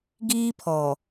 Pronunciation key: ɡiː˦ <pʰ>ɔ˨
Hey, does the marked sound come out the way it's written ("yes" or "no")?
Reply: yes